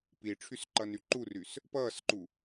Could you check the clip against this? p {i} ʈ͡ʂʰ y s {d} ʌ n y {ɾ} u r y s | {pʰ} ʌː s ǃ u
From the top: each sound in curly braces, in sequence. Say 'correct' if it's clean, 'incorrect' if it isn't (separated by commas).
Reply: correct, incorrect, incorrect, incorrect